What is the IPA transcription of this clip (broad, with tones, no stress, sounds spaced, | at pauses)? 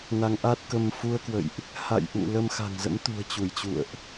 n a˨˦ ŋ ʔ a˦˥ t̚ k ə˧ m f u˧ ə̯ k w ə̰˧˨ j ʔ | h a̰˧˨ j ʔ ṵ˧˨ l ə˧ m x a̤˨˩ ŋ z ə̰˧˥ m t̪ ṳ˨˩ ə̯ t͡ɕ u˧˩ j t͡ɕ ṵ˧˨ ə̯ ʔ